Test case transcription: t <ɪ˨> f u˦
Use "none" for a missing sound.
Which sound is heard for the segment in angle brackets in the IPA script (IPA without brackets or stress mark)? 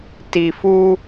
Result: i˨